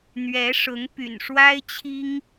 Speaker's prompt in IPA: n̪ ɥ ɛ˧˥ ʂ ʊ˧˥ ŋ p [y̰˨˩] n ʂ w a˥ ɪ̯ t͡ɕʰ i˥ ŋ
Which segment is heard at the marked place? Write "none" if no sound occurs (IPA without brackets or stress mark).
y̰˨˩